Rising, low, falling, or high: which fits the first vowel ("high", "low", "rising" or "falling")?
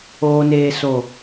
low